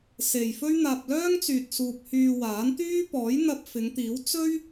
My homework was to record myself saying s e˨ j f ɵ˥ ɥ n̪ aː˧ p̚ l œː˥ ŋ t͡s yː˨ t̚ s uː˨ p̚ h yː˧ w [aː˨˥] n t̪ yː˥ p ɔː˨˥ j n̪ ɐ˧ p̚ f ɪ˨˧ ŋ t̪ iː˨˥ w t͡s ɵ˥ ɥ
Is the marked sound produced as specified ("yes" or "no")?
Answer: yes